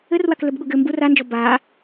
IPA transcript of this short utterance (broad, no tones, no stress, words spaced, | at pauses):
ɘrwaklɘbɠu ɡɘ mbu rand͡ʒɔ ba